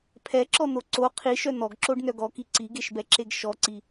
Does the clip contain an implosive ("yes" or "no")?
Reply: no